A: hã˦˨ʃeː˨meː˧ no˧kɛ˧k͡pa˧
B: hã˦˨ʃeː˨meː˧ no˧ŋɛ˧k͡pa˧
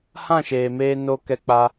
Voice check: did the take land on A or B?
A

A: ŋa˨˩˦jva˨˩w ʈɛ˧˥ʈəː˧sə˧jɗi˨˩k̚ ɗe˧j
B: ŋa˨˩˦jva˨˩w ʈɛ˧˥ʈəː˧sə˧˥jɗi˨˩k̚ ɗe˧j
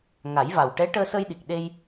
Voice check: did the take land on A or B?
A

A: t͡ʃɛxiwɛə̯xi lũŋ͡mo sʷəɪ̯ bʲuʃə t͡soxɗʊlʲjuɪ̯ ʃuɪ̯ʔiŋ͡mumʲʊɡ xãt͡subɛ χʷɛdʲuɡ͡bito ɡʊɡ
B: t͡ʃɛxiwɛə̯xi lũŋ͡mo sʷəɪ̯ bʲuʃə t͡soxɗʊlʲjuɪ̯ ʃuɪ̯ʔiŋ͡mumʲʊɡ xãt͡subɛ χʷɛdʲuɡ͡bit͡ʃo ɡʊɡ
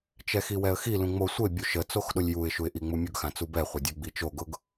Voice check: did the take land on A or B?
B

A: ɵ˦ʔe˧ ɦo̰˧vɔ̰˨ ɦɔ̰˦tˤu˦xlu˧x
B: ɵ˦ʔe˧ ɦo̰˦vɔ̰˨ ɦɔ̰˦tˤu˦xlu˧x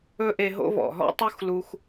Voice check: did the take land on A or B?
B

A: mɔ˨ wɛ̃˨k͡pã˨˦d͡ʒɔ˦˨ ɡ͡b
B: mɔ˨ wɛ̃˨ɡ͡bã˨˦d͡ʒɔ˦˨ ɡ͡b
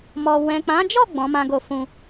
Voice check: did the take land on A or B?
A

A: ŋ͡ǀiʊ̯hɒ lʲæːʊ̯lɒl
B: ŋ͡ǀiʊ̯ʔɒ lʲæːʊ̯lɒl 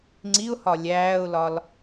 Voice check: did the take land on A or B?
A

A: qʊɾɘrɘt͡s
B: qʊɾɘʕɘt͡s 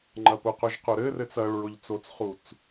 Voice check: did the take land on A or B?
A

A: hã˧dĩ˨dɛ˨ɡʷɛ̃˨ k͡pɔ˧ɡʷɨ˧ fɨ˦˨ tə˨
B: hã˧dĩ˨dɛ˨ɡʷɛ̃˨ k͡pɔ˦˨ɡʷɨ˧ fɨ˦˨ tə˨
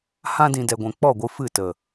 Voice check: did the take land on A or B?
B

